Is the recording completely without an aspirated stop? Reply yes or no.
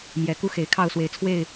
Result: no